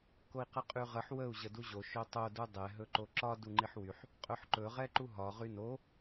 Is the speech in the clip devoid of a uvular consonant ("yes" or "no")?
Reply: no